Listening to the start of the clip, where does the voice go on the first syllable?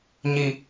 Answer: low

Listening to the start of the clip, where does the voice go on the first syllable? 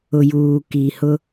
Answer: low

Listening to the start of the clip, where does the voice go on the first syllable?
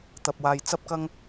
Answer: low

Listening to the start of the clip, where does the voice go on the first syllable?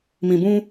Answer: low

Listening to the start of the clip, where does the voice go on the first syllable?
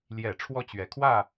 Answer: low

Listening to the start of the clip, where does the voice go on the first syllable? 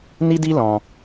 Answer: high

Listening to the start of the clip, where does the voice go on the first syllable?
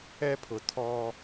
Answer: high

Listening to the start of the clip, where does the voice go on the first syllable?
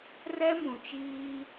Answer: high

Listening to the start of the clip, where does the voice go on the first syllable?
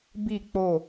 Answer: falling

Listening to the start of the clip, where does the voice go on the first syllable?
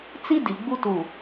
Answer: high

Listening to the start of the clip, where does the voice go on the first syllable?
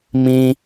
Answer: high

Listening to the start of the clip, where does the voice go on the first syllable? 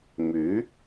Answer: rising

